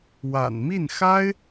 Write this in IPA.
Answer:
w a̰˨˩ n m i˥˩ n x a˥ ɪ̯

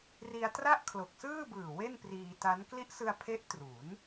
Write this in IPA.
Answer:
r i˧ a̯ t r a˥˩ ʔ kʰ l o˨˩ k̚ s ɯː˥˩ b ɯː˨˩ w e˥˩ n p r iː˧ t a˦˥ n k l i˦˥ ʔ s ɯ˧ a̯ pʰ e˦˥ ʔ t r u˩˦ n

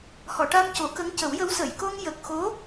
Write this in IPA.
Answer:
h ɔ˨˩˨ ʈ a˧ m c o˨˩˦ k ə˧˥ ŋ c ə˨˩˦ w j ə˧˥ w s ə˨˩˨ j k o˧ ŋ j ə˨˩ k̚ x o˧˥

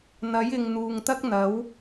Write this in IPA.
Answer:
n̪ ɐ˨˥ j ɪ˨ ŋ n̪ uː˨ ŋ t̪ ɐ˥ k̚ n̪ ɐ˨˥ w

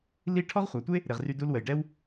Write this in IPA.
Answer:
l i˥ ʈʰ ɔ˥ ʁ χʷ a˨ tʷ e˥ | ɾ e˨ ʁ r y˦ d u˦ l w ə˨ j ɖ ɛ˥ w

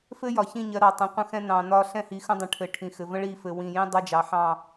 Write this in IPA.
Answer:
f ɘ˦ j ɒ˨ ç ĩ˦˨ ɲ ɜ˨˦ ɾ ɑ˨ tˤ ɛ̃˨ qʷ ə̃˦ x ɛ̃˦ n ɑ̃˨ n ɒ˦ ɬ ɛ̃˦ h i˨ x ə̃˦ dˤ ə̃˨ ʈʰ ɘ˨ ʈʰ ĩ˨ x ɘ˨ v ə̃˦ ɭ i˦˨ f ɘ˨ w ĩ˨ j ĩ˦ dˤ ɜ˦ d͡ʒ ɑ˨ ħ ɑ̃˦˨

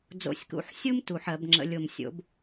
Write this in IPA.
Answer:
d͡z o̰˨˩ sʲ k ṵ˩˧ ħ sʲ u˦ m t u˨˩ ħ ɜ˧˩˧ b ŋ͡ǁ ə̰˩˧ lʲ o˨˩ m sʲ o̰˩˥ b

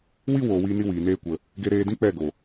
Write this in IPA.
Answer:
w i˦ w oː˧ w iː˦ n i˦ w iː˨ n eː˦ kʷ ə˧ | ɡ e˧ ɾ eː˧ d ĩ˦ k͡p ɛ˦˨ ɡ o˨

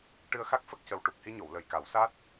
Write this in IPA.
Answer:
ʈ ɨ˧ ə̯ x a˦˥ k̚ f ə˦˥ k̚ c ə˨˩ w ʈ u˨˩ k̚ h i˧ ɲ o˨˩˨ w l ə˨˩ j k a˨˩˦ w s a˦˥ t̚

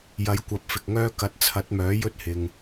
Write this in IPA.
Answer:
j ɐ˨˥ j kʷ ɐ˨˥ p̚ f ɪ˨ k̚ ŋ œː˥ k ɐ˨ t̚ t͡sʰ ɐ˨˥ t̚ m œː˨˥ j ɵ˥ t̚ h ɪ˨ ŋ

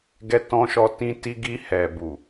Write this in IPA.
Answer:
ɡ ɛ˧ t ɔ̃˧ ʃ ɔ˧ t ĩ˧ t i˧ ɡ i˧ h ɛ˨ b u˨

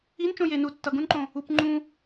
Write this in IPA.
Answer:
i n t͡ʃ õ j e n u tː ʌ ɡ ũ n ǃ õ | u p ŋ͡ǃ ũ

